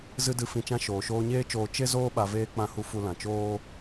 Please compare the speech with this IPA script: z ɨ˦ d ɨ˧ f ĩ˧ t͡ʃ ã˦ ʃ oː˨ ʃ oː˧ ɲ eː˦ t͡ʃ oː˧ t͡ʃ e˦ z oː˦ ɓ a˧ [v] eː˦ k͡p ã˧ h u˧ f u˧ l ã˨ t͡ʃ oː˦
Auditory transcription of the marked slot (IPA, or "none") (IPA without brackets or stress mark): v